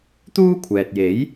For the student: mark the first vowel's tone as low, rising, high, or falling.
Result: high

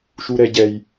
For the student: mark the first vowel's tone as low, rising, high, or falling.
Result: low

